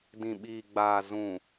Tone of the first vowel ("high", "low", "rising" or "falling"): low